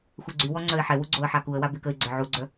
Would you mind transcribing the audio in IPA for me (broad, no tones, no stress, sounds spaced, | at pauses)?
xʷ ɛ ɡ͡ǀ y w ɔ ŋ͡ǀ œ ɪ̯ ħ ɛ w u ɡ͡ǀ o ə̯ ħ a k u ə̯ w a b y k ə ɪ̯ ɡ͡ǀ ə˞ ʕ u ɡ͡ǀ œ